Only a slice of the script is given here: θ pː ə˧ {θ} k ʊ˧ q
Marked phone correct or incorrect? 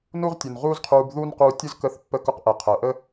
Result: incorrect